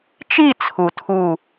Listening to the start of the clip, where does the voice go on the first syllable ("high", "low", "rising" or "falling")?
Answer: falling